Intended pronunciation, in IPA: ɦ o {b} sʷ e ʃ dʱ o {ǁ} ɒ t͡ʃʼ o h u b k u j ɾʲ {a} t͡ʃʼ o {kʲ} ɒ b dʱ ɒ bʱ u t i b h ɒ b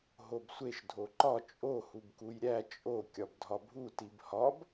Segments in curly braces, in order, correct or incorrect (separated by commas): correct, incorrect, incorrect, correct